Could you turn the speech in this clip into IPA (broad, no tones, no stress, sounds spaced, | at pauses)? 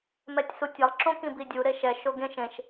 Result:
m ɛ tʲ s u tʲ ʌ lˠ ǁ õ k ĩ b i dʲ u ɾ e ʃ ɛ ʃ o ɡ ẽ ʃ ẽ ʃ